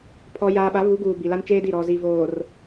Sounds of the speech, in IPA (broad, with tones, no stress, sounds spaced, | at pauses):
pʰ ɔ˨ j aː˨ ɓ a˨˦ β u˨˦ ɡ uː˨ b i˨ l a˦ n t͡ʃ eː˦ d i˦˨ ɾ ɔ˨ z i˨ v oː˨ r